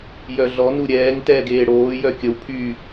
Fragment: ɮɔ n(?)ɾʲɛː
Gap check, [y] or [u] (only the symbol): u